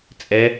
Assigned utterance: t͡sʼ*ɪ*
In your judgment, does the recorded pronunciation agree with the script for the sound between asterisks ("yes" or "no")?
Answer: no